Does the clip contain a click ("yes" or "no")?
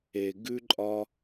yes